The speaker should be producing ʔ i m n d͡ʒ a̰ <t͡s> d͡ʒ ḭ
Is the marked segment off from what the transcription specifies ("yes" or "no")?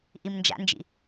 yes